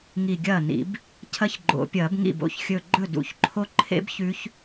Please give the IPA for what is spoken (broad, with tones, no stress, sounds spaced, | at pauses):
ŋ i˧˩ ɡʲ ɐː˥˩ n ḭ˨˩˦ b | cʰ ɐ˦˥ ç ɡ͡ǃ o̰˨˩˦ pʲ ɐː˨˩˦ b ŋ ḭ˥˩ b o̰˧˩ ç xʲ ɵ˧˩ ɡ͡ǃ ɵ˥˩ d ṵ˨˩˦ ç ǃʰ o˦˥ ǃʰ ḛ˦˥ b ç ʉ˦˥ ç